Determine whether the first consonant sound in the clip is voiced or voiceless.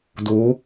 voiced